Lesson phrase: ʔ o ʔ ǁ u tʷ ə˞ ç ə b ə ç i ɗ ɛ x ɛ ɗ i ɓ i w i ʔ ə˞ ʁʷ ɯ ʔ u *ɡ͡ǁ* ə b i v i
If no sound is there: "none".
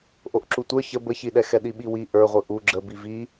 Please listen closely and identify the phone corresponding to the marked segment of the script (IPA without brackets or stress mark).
ɡ͡ǁ